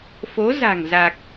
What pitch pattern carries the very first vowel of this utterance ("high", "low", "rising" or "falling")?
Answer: rising